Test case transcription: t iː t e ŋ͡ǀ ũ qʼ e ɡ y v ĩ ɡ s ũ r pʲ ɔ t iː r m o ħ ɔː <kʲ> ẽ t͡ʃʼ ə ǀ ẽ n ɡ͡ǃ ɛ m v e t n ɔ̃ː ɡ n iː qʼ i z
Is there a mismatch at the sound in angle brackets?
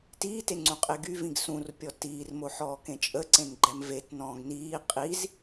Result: yes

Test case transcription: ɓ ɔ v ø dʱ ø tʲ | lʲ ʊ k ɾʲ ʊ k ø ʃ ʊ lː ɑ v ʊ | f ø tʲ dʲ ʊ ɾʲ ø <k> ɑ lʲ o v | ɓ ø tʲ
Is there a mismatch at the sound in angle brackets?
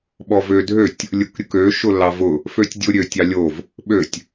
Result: yes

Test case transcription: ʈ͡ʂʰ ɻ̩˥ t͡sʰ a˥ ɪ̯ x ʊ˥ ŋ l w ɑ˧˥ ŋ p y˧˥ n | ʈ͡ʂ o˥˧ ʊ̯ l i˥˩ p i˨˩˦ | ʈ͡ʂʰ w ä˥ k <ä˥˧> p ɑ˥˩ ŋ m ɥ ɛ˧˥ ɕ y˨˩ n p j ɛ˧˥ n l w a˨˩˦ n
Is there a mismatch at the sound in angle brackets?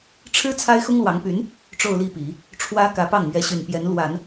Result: yes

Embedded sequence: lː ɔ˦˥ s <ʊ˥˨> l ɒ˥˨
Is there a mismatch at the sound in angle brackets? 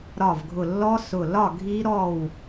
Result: yes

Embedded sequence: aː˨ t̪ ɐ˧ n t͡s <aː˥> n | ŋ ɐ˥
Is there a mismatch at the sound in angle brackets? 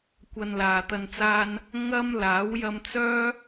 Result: no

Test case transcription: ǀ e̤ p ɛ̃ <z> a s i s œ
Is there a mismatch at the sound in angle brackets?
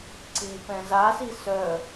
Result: no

